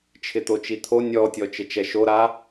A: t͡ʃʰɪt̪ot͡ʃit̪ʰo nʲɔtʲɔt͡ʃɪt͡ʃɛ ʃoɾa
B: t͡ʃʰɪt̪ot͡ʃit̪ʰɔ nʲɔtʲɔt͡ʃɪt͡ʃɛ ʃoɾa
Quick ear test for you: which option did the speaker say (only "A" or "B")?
A